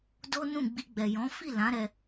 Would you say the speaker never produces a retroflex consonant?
yes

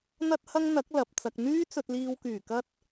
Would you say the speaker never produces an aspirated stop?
yes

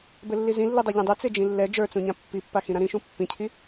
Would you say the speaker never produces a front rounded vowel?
yes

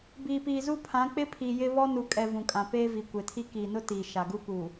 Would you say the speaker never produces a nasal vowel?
no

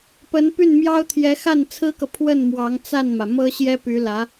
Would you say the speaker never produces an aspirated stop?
no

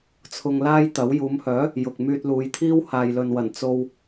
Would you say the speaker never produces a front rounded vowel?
no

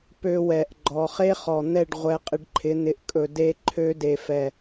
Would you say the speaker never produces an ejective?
no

